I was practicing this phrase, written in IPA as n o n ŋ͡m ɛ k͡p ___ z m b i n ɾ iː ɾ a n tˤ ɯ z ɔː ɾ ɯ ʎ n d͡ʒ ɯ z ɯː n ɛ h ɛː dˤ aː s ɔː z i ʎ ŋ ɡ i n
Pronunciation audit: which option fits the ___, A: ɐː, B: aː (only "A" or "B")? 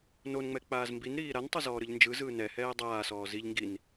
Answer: B